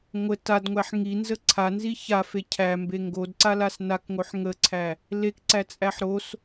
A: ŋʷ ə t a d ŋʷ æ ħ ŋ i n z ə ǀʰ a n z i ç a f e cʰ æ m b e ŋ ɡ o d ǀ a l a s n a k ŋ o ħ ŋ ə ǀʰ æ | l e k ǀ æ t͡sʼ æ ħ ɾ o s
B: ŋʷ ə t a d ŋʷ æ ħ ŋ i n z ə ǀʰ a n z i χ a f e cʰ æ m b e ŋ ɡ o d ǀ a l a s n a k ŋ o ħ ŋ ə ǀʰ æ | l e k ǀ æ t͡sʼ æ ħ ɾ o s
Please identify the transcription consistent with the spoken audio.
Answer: A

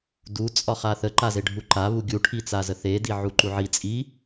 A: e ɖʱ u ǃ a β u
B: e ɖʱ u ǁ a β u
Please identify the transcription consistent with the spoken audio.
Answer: A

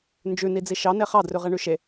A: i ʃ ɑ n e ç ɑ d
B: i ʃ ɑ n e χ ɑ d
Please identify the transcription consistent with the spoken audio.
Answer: B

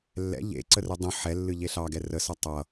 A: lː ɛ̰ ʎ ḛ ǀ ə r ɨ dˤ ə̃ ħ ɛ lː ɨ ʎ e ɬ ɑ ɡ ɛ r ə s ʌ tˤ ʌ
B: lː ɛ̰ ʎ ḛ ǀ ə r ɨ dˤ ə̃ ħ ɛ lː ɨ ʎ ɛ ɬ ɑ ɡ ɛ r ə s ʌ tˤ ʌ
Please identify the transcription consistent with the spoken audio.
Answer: A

